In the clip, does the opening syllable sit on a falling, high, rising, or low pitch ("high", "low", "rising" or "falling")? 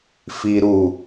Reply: low